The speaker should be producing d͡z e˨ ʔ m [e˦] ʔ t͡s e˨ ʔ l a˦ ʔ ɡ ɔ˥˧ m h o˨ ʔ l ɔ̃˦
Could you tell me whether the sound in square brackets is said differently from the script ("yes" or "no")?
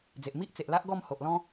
yes